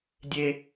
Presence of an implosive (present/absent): absent